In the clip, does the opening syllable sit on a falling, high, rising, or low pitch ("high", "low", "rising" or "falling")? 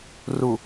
low